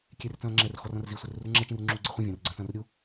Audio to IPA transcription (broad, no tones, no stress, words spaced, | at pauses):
kʲer t͡sɐ̃ːŋ͡ǁɛr xɔrɐ̃rzi sʷerurŋ͡ǁɛ t͡ʃĩrŋ͡ǁuːɡ͡ǀɛχʷĩ vʲɐ̃ːrɡ͡ǀɐ̃ːt͡sɐ̃ːrɾʲu